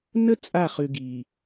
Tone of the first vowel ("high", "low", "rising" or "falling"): high